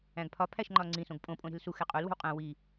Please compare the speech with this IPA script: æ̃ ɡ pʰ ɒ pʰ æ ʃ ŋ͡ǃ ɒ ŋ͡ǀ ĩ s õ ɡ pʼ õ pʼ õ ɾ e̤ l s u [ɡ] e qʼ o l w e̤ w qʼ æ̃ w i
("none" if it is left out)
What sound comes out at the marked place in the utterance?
x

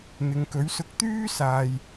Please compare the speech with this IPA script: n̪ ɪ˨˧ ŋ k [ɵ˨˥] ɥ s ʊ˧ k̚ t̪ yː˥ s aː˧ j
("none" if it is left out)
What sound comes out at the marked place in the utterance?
ɵ˨˥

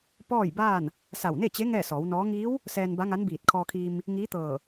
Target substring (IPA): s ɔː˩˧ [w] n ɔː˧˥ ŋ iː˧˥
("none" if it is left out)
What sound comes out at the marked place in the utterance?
w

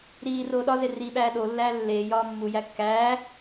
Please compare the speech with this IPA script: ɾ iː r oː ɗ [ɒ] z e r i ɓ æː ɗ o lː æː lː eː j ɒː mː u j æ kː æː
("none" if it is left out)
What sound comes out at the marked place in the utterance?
ɒ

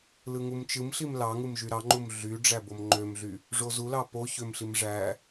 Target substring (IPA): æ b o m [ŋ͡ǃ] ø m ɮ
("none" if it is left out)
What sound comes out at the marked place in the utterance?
ŋ͡ǃ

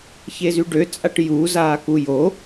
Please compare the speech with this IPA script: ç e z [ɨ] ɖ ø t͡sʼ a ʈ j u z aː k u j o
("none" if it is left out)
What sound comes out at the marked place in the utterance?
y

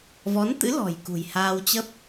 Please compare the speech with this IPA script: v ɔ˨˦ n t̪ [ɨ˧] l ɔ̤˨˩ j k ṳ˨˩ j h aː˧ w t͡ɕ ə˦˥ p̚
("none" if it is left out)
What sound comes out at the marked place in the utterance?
ɨ̰˧˥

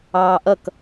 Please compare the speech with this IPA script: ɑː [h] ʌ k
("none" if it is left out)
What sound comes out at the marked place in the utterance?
ʔ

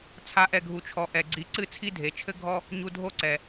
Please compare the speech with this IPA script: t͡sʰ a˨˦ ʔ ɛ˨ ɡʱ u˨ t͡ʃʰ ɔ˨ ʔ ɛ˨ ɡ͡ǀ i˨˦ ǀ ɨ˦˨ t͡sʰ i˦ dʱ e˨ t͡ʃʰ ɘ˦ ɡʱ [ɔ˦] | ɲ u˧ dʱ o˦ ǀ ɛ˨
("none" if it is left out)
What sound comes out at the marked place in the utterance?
ɔ˦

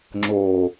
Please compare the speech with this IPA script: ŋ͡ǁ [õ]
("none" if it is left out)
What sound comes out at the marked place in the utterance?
o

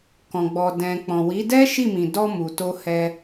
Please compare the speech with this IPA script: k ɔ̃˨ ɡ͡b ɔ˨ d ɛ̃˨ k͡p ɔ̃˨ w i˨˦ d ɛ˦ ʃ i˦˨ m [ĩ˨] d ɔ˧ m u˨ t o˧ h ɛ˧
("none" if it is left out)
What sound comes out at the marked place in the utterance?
ĩ˨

